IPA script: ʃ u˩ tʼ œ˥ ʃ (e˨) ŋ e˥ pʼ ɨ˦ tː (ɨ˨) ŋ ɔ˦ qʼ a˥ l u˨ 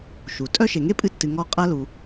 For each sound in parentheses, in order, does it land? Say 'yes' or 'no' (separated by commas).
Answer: yes, yes